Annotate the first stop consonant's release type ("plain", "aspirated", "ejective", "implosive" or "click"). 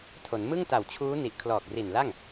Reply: aspirated